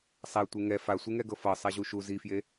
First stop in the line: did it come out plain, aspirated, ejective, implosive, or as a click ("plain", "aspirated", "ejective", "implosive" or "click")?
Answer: plain